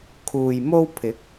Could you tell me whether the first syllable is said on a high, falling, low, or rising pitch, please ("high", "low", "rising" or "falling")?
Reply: low